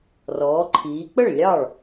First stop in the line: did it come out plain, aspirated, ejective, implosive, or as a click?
click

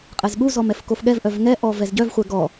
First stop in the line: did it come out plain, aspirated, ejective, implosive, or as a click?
ejective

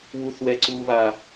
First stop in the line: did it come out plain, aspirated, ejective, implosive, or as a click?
click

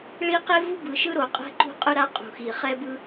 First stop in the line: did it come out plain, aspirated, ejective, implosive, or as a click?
plain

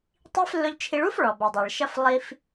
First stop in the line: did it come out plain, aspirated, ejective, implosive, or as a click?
plain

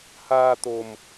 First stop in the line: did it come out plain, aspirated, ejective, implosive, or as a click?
plain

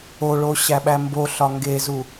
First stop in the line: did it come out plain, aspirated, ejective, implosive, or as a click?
implosive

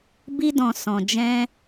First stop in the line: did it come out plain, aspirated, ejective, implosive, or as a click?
plain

